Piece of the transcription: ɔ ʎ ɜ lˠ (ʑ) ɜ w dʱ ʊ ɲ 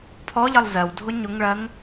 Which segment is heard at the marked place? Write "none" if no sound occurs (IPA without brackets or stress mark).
z